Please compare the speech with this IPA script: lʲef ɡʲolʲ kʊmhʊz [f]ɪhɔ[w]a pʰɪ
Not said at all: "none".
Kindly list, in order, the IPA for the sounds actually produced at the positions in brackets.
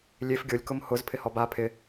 pʰ, b

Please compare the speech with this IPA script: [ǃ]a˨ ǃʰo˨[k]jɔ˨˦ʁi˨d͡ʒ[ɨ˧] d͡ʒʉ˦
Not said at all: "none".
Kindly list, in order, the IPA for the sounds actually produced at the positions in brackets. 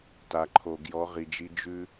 t, ɡ, i˧

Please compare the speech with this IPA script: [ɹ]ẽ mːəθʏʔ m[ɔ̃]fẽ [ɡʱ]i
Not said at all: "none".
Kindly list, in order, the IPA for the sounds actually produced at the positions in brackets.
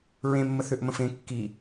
ɹ, ə̃, kː

